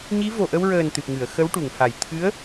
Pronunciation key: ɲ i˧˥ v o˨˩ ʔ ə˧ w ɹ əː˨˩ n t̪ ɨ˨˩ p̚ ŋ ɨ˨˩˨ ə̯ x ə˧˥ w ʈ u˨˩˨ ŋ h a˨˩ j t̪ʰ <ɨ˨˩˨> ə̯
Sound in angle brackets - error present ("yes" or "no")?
yes